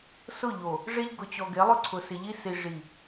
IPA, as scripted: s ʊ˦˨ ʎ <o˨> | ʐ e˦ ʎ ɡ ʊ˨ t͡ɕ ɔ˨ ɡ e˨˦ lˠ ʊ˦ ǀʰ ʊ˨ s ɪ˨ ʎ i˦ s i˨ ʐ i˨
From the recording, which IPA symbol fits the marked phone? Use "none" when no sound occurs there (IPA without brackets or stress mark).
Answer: o˨